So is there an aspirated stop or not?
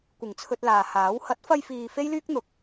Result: yes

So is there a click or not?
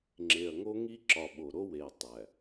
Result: yes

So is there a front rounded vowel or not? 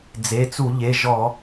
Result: no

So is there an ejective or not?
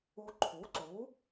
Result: no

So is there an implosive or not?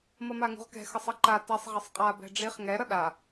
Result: yes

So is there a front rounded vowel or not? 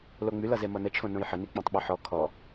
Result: yes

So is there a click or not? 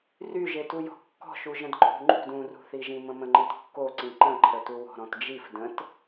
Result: yes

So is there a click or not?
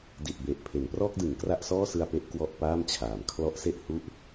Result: no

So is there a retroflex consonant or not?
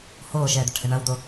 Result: yes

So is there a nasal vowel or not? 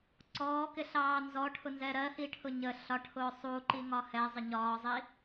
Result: no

